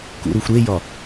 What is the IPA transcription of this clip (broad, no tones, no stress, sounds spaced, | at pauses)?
k ṵ ɾ u xʷ ɾ e j ɒ